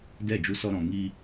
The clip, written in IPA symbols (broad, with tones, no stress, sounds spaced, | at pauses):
d ɛ˦˨ d͡ʒ u˧ s ɔ˧ ɾ ɔ̃˨ ŋ i˧